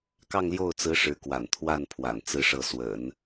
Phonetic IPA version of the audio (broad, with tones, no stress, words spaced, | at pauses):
kɑ˥˧ŋljo˥˩ʊ̯t͡sɹ̩˧˥ ʂɻ̩˧˥kwa̰˨˩n t̪ʰwa˥˩n pʰwa̰˨˩nt͡sɹ̩˥ʂɤ˥˩ swə̰˨˩˦n